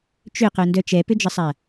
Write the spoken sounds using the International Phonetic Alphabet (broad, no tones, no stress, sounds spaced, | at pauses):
t͡ʃ ʏ q œ n d œ t͡ʃ ɛ p ʏ d͡ʒ ə sˤ a